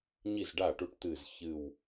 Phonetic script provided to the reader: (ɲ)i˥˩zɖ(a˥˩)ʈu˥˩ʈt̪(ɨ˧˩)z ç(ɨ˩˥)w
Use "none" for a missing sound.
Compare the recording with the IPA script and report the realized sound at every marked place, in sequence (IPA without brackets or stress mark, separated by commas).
ɲ, a˥˩, ɨ˧˩, ɨ˧˩